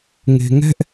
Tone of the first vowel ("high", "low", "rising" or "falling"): low